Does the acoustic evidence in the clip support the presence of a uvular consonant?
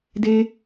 no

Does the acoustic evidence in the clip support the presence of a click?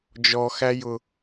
no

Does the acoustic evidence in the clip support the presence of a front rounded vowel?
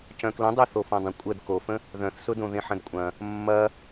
yes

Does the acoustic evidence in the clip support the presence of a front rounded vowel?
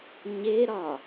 no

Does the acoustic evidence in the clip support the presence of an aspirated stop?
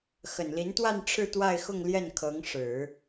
yes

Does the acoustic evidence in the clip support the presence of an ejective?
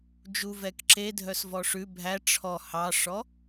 no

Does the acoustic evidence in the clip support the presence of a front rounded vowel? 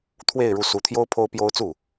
no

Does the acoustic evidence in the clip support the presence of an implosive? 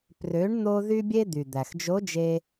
no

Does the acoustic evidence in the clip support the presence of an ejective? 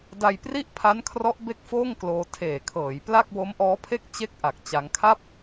no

